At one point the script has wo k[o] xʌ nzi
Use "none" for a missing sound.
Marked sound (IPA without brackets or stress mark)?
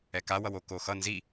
o